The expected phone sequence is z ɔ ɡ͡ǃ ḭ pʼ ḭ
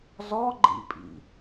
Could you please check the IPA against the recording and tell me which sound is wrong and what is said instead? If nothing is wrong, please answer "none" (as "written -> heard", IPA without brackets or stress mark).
none